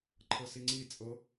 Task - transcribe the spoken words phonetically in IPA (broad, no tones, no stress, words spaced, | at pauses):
ǃʰɤsiŋ͡ǀit͡sʼɤ